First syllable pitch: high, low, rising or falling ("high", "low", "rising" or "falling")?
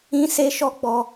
high